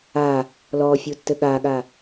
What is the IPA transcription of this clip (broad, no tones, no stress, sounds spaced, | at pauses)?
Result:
a | l ɔ fʲ u tː ɘ ɠ a ɠ a